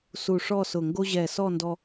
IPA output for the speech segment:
s u˧˩ ʂ ɔ˥˧ s ʊ˧˩ ŋ ɡ o˥ ʑ ɛ˧˩ s ɔ˥˧ n d ɔ˥

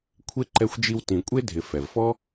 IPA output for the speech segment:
kʷʰ e˥ ǃ ɛ˦ xʷ d͡ʒ i˦ w t ĩ˨ kʷʼ e˥ dʱ ɪ˨ f ɛ˩ v f ɔ˦

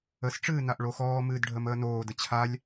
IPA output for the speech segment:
ə s ʈ͡ʂ ɨː n a ʔ ɭ o x ɔː m ɨː d ɖʱ ə m əː n oː d ə t͡ɕʰ a lʲ

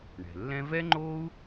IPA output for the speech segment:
ɳ ɛ̤˩ lː ɛ̃˥ v ɛ˥ ŋ͡ǃ oː˥ u̯

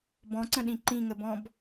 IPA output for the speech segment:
b ɔ̃ ǀ ə̃ ɗ ĩ ǃ ĩ ŋ ə b ɔ̃ b

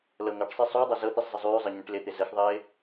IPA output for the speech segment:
l ɤ ŋ ɤ ʈ sˤ i sˤ ʉ ʊ̯ dˤ ɤ z ɤ t̪ i sˤ z ə zˤ ʉː zˤ ɤ ɲ ẽ ʈ l ɪ t̪ ɪ z ə x ðˤ ɪː

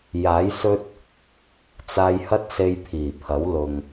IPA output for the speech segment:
j aː˨˥ j s ɵ˥ t̚ | t͡s aː˧ j h ɐ˥ t̚ s e˧ j pʰ iː˨˩ pʰ ɐ˨˥ w l ʊ˨ ŋ

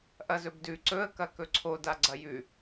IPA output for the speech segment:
ʔ ɐ z ɵ b d ʉ ǀ ɵ ə̯ k ɐ k ɵ ǀʰ o d a ɡ͡ǀ ɐ j ʉ

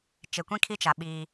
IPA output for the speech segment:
t͡ʃ e˨ kʷ ĩ˦ kʰ i˦ t͡ʃ a˨ ɓ iː˦

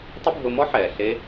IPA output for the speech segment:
tˤ ʊ˦ bʱ ʊ˧ m ɔ˦ ħ ɛː˨ ɬ e˦

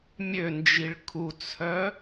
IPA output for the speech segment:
mʲ ø n d͡ʒ i ɭ kʰ u t͡sʰ œ

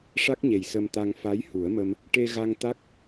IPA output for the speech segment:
ʂ a˦˥ k̚ ɲ e˨˩ j s ə˧ m t̪ a˧ ŋ f a˧˥ j h u˨˩˦ ə̯ m ə˧ m | ʈ e˧ ɣ a˧ ŋ t̪ a˦˥ k̚

